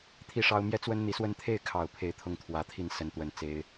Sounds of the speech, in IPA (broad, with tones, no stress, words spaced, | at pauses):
t̪ʰi˥˩ʂɑ˥ʊ̯ mjɛ˥˩t͡swə˥nn̪i˧˥swə˥˧n t̪ʰe˥˩ɪ̯kʰɑ˨˩ʊ̯ pʰe˥˩ɪ̯t̪ʰʊ˥ŋt̪ʰwä˧˥t̪ʰi˥˩n sə˧˥nt̪wə˨˩n t͡se˧˥ɪ̯